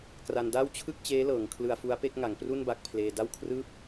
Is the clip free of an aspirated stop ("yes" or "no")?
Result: no